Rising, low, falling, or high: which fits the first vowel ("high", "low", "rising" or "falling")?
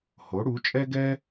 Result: rising